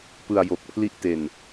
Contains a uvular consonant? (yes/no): no